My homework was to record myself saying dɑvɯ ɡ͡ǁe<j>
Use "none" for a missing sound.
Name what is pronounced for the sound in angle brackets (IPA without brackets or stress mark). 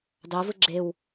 w